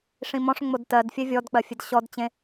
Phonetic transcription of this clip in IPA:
ʂ ĩ m ɔ̃ ʂ ŋ͡m o d t ɜ d fʲ ɛ vʲ ɔ d k͡p ɜ fʲ e d ɕ ɔ d t͡ɕ ẽ

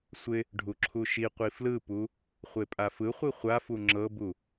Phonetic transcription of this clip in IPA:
sʷ ɪ | ɖʱ u ǁʰ u ʃ i qʷ i f l ɯ p u | χʷ e pʼ a f ɯ χʷ i χʷ a f u ŋ͡ǁ ɤ b u

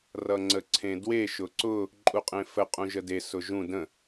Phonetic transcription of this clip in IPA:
r ʌ ŋ͡ǀ ə ǀʰ ẽ d w e ʃ ʊ ǀ ʊ | ǃʼ u qʼ ẽ f ə qʼ ũ ʒ ə d e s ʊ ʒ ũ d ə̃

